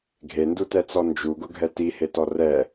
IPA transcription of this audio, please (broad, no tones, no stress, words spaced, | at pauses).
ɡʱendutɛt͡sɔ nd͡ʒuɡʊɡʱɛ tihetɔ rɛ